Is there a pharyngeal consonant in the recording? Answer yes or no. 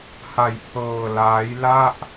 no